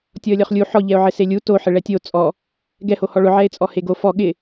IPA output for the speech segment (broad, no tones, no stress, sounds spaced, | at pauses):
tʲ ɔ ə̯ lʲ ɔ χ lʲ u ħ ɔ ʎ ɛ ʊ̯ ʕ ɪ s e lʲ u t o ħ ɪ ɭ ɛ tʲ o t͡sʼ ɔ | ɡ ɛ h o h ɔ ɭ ʊ ʕ ɛ ɪ̯ t͡sʼ ɔ h e ɡ o f ɔ ɠ ɪ